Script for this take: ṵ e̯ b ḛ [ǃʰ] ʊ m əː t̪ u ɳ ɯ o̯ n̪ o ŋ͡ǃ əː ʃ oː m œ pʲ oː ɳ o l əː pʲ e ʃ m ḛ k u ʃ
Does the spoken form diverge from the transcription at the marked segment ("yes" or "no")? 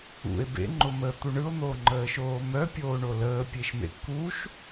yes